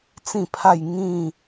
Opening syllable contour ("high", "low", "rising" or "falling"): falling